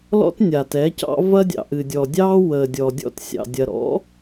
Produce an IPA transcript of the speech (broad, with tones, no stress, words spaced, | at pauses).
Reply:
lɔ̰˦tnʲa˨ tɛ˨˦cɑ̰˦ vɐ˦dʲɑ̰˨ʔɨ˨dʲɔ˨ dʲɑː˦wəː˨ dʲɔ˨dʲɔ̰˦˨tsʲɑ̰˨dʲɐ˨ ɾɔ̰˨˦